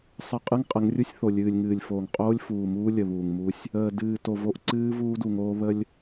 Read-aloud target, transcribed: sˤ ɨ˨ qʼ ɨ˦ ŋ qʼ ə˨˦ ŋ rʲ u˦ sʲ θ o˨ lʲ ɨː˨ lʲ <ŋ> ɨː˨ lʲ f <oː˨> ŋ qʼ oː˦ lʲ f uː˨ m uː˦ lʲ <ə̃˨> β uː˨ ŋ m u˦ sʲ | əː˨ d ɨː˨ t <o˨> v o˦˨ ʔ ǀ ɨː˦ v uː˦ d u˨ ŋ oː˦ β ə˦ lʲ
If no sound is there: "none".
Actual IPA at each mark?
ŋ, oː˨, ə˨, o˨

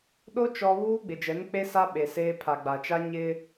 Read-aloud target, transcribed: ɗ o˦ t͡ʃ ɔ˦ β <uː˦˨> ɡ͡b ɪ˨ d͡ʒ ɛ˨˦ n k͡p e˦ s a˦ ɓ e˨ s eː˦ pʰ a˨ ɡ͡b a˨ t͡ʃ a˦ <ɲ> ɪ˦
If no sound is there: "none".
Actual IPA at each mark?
uː˦, ɲ

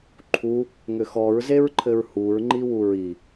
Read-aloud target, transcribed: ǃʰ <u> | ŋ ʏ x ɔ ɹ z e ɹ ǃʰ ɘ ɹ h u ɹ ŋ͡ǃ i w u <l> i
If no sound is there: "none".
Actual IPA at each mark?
u, ɹ

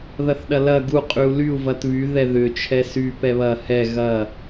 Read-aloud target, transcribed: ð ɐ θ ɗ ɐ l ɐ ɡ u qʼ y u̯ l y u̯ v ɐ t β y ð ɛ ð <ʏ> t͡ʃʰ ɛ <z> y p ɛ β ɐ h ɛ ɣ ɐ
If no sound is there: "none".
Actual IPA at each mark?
ʏ, s

